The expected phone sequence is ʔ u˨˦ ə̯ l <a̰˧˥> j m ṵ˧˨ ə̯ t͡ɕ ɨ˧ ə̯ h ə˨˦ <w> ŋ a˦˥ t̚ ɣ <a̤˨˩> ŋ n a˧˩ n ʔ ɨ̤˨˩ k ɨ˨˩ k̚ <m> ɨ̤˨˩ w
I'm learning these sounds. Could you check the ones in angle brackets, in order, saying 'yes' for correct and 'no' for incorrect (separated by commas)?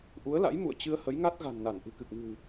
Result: yes, no, yes, yes